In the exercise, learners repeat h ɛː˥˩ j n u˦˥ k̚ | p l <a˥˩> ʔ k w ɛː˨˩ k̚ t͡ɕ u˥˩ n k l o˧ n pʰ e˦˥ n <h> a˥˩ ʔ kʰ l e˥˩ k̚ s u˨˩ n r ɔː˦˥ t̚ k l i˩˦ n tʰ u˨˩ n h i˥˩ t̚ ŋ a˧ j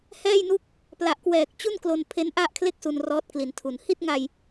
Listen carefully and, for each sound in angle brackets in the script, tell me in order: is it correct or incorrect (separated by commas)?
incorrect, incorrect